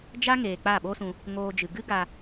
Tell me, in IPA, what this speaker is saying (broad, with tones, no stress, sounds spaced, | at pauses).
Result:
d͡ʒ a˦ ŋ eː˨ k͡p a˦˨ ɓ o˦ s ũ˧ | ŋ oː˧ d͡ʒ ɨ˨ ɡ ɨ˦ ɡ a˧